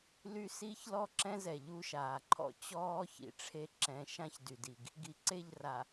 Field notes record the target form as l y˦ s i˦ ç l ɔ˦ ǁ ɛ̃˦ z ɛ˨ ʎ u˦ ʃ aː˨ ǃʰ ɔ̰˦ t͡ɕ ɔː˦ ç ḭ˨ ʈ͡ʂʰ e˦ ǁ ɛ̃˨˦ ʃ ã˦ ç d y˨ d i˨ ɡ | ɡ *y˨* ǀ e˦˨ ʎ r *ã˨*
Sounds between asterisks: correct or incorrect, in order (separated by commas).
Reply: incorrect, incorrect